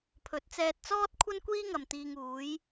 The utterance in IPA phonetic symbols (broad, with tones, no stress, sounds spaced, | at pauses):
pʰ ɵ˨˥ t̚ t͡s ɛː˧ t̚ t͡s ɔː˥ t̚ kʷʰ ɐ˥ n kʷ iː˥ ŋ ɐ˨ m t̪ iː˨ ŋ uː˨˧ j